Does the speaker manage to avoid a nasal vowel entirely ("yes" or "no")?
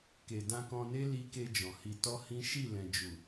no